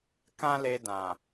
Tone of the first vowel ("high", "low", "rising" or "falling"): high